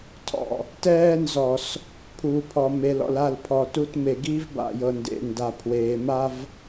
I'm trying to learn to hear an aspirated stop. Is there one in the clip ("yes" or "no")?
yes